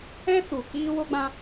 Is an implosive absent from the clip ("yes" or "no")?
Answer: yes